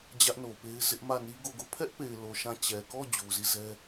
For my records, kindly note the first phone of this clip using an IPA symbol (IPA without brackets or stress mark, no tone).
d͡ʑ